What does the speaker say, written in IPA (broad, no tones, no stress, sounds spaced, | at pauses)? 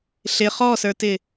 ɬ ɪ χ ɔ s ə˞ t ɪ